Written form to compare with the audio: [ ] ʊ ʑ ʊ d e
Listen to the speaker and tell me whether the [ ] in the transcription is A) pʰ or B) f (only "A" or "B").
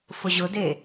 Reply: B